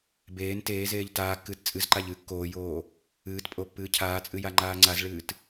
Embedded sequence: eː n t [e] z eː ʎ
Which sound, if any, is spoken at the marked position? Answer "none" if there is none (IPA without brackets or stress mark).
eː